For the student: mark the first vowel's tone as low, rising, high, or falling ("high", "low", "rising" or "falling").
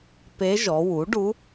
rising